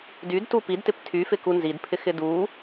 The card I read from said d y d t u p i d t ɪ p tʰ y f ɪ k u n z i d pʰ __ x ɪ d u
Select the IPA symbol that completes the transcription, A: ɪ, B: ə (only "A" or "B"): A